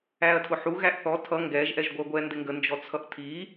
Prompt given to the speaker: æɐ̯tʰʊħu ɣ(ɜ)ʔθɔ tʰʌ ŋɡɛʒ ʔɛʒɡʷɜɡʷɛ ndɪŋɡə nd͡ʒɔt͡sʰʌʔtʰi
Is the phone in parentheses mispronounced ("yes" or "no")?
yes